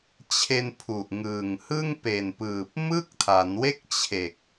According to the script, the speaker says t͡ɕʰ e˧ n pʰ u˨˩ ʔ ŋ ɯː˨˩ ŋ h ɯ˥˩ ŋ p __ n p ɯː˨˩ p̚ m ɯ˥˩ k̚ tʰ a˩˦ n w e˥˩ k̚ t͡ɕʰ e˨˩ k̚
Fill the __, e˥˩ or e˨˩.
e˨˩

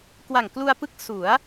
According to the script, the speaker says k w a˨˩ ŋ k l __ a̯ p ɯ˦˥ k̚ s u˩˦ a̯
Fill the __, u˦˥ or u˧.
u˧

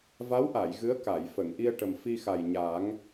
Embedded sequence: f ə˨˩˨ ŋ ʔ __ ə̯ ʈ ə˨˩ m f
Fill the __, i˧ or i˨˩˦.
i˧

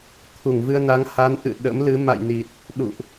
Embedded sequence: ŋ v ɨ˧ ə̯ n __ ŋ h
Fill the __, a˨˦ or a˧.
a˨˦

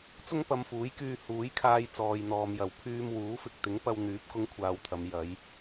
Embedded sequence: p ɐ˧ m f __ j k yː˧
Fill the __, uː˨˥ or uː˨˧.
uː˨˥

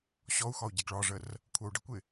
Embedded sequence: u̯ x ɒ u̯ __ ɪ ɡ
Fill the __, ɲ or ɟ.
ɟ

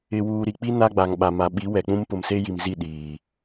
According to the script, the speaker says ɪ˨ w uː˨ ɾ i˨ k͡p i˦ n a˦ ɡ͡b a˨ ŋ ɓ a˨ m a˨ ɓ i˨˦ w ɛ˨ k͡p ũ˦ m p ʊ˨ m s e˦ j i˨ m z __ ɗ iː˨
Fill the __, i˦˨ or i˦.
i˦˨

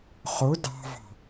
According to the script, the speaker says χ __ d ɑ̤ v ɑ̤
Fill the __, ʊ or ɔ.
ʊ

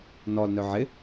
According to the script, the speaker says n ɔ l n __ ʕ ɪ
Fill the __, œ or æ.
œ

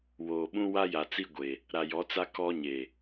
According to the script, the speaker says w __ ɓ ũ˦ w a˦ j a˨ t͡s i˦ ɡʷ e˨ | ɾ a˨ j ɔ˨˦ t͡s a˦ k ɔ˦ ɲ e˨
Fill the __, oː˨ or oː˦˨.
oː˨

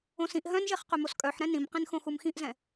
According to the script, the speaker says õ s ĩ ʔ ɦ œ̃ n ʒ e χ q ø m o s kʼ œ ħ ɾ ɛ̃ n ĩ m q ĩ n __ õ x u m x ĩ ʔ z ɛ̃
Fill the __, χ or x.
x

